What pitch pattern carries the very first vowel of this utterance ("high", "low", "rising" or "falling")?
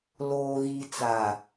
low